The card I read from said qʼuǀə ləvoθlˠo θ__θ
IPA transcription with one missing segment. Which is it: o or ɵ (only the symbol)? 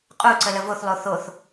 o